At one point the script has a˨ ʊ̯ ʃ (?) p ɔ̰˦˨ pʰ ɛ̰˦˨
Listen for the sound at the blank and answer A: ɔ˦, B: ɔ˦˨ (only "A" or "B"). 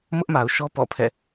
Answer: A